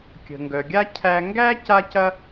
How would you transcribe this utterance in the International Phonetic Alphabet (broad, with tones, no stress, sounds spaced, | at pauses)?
kʲ ə̤˨ ŋ ɡ œ˨ ɡʲ a˥ cʰ æ˦ ŋ ɡ æ˥ c a˥ c ɐ˥